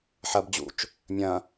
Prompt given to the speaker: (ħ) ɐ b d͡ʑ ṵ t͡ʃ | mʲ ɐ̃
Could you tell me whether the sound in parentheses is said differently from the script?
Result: no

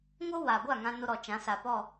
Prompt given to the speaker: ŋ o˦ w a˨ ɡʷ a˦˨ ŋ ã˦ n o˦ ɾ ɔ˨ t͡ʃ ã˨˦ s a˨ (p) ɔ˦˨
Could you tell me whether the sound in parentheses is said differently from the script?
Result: no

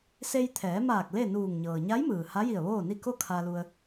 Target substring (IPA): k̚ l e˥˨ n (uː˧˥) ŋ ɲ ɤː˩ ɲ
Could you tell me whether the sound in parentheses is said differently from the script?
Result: yes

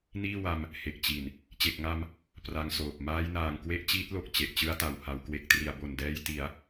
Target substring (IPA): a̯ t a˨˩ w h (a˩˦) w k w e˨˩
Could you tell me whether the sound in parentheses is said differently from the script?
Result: no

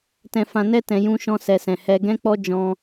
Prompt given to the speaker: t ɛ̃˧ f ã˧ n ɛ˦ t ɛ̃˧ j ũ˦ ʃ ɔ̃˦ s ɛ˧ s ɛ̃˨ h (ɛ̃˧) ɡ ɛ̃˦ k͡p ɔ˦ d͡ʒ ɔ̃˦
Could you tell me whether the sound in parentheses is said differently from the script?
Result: yes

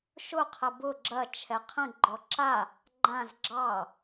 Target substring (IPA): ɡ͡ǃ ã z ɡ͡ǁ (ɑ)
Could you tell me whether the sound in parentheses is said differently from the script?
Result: no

